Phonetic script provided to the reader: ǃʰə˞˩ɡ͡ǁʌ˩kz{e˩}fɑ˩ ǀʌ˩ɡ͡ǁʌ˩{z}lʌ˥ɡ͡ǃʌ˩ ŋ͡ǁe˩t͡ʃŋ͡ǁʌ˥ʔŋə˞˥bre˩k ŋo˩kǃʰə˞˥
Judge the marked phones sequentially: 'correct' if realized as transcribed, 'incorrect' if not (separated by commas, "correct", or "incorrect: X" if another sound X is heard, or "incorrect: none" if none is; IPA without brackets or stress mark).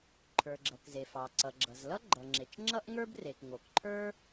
correct, correct